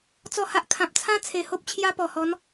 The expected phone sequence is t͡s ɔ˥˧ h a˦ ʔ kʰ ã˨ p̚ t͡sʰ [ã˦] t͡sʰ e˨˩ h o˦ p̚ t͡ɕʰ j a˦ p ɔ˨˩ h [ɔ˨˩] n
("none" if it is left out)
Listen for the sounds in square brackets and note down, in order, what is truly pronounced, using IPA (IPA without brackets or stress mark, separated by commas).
ã˦, ɔ˨˦